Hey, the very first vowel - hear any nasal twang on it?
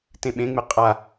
yes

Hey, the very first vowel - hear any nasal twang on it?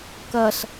no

